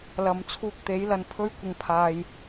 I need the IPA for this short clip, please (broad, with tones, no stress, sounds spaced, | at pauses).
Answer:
l ɐ˨ m t͡sʰ uː˧ k̚ t̪ e˨˥ j l ɐ˧ n pʰ ɵ˥ ɥ kʷ ɪ˧ ŋ pʰ aː˧ j